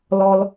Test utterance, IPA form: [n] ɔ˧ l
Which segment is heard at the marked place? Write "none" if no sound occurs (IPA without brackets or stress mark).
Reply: l